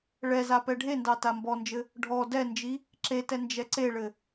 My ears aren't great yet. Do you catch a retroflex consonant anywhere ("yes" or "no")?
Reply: yes